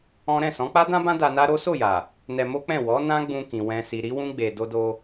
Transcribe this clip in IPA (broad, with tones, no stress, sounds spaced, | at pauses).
ɔ̃˦ ɾ ɛ̃˦˨ s ɔ̃˨˦ k͡p a˦ d ã˦ b ã˦ d a˧ n a˦ ɾ o˦ s o˦˨ j a˨ | n ɛ˧ m o˦ k͡p ɛ̃˦˨ w ɔ˨˦ n ã˦ ɡ͡b ũ˧ k ĩ˨ w ɛ̃˨ s i˨ ɾ i˨˦ w ũ˦ ɡ͡b e˧ d o˧ d o˧